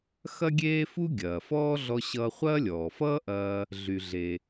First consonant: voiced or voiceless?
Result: voiceless